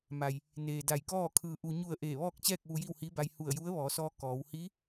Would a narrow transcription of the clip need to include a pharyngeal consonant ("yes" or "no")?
no